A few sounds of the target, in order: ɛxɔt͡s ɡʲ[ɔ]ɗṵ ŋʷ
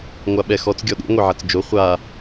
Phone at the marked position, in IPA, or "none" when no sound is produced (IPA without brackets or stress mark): ɔ